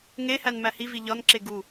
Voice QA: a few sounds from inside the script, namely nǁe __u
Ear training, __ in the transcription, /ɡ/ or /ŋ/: ɡ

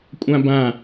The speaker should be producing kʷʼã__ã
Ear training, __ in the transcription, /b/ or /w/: b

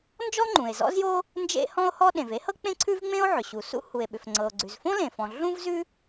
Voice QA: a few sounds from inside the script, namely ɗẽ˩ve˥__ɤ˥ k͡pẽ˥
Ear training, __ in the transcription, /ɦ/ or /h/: h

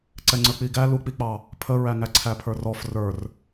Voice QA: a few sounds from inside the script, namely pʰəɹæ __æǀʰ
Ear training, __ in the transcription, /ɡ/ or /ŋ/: ŋ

